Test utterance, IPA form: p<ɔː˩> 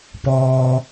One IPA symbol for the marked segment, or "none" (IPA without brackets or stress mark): ɔː˩